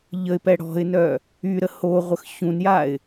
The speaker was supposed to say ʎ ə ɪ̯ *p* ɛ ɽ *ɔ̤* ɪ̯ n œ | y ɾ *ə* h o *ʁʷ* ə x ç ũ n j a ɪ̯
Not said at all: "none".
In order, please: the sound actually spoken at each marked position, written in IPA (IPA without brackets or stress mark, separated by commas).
p, ɔ̤, ə, ʁʷ